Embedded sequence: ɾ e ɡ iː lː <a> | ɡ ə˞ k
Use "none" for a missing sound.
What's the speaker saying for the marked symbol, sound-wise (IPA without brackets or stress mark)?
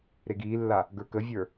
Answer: a